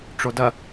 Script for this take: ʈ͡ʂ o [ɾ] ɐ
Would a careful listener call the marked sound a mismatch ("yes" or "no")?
yes